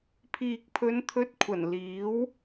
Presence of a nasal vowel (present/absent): absent